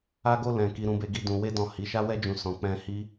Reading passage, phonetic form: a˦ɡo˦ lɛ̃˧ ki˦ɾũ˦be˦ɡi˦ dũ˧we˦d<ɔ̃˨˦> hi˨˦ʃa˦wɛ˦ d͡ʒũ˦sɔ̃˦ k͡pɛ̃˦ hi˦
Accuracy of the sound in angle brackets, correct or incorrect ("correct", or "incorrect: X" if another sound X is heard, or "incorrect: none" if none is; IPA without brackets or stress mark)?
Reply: incorrect: ɔ̃˦˨